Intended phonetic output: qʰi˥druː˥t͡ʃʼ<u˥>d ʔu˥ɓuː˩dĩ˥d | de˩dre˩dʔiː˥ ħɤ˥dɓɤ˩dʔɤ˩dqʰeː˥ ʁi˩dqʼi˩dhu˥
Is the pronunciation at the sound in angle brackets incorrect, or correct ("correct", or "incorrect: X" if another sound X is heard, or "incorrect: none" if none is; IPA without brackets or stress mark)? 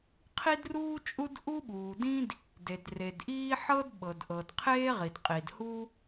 correct